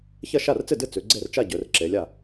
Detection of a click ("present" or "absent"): present